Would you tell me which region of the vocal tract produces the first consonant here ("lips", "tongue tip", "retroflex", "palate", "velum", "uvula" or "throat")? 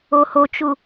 throat